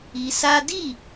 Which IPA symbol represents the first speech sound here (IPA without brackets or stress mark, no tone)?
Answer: i